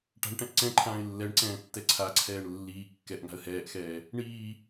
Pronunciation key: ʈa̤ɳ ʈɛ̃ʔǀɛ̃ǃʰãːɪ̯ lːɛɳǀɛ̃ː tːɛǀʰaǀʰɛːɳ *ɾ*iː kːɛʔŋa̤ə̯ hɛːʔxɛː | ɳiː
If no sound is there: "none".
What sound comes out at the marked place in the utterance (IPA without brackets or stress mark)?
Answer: lː